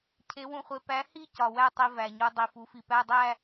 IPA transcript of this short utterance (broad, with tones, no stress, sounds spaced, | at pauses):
cʰ e˨˥ w ũ˧ χʷ e˧ p æ˨˥ h i˥˧ c ɒ˨˩ w æ˥˧ tˤ i˧ v æ˨˩ ɲ o˧ dˤ i˨˩ f u˩˧ f i˨˩ p æ˧˥˧ dˤ æ˥˧